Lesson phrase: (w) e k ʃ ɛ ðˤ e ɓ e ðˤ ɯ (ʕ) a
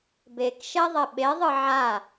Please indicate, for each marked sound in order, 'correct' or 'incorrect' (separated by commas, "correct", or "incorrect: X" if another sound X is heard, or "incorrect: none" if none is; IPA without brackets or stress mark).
incorrect: b, correct